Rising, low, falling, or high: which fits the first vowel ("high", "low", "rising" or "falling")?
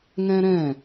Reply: high